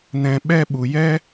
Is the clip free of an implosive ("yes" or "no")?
no